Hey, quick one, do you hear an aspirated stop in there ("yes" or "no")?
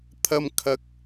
yes